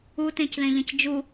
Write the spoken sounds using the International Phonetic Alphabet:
utẽcðẽʎɐ̃c d͡ʒu

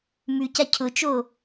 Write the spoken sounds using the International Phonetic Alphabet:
mʉca cʰʊt͡ʃo

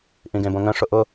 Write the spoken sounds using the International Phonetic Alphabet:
ʔĩɡẽbõŋə̃ ʂʊʔʊ

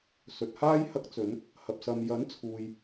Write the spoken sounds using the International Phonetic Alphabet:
sɵ˨t̚haː˥j hɐ˧k̚t͡sɵ˨˧n | hɐ˨p̚ sɐ˨mjɐ˨˥nt͡sʰuː˨j

